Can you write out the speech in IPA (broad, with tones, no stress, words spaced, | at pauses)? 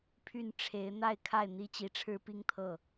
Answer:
pʰy˥˩nʈ͡ʂʰe˧˥ɪ̯ n̪a˥˧ɪ̯kʰa˥˩ɪ̯ n̪i˥ t͡ɕi˧˥ʈ͡ʂʰɻ̩˥pi˥ŋt̪ʰɤ˥˩